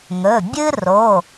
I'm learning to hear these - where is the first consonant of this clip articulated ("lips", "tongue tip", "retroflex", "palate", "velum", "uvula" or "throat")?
velum